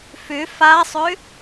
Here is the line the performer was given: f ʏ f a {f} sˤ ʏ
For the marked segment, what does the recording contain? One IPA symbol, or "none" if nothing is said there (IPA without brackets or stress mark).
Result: none